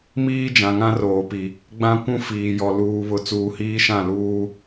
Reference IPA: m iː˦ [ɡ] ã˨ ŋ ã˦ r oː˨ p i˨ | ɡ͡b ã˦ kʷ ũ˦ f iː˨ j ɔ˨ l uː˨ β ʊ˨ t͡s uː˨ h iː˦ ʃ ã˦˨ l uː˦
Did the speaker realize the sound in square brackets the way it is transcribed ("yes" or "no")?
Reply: no